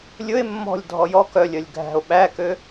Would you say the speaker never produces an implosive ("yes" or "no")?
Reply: no